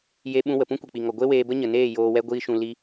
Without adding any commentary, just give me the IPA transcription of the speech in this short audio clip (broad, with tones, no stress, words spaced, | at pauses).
je˧ ɓũ˧wə˨pũ˦ kʷi˨k͡pi˨ŋɔ˨ ɡʷe˦weː˧ bə˦ɲə˨neː˦˨ joː˧wɛ˦ɡʷiː˦ʃũ˧ li˦